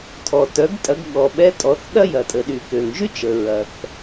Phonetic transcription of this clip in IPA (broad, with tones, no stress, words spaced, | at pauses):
tʰɔ˩tœ˩˧ɡtʼɐ˩˧ɡɠɔ˩ ɓɛ˧˥tʼɔ˩˧θ ɗɐ˥jɐ˩ tʼə˩ɗy˩ kø˩ŋʒy˥t͡ʃə˩ ɹɐ˩θ